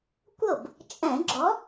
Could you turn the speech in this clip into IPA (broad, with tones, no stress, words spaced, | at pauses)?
kʷɤ˥˩b | t͡ʃʼɛ̃˧˩˧ ɡ͡ǁɔ˨˥